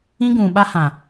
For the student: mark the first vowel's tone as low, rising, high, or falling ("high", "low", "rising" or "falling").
high